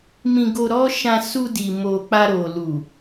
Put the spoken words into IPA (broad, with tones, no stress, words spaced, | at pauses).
mĩ˧ɡo˧ɾɔ˦ʃã˧ su˧di˨mo˨ k͡pa˧ɾo˨ lu˨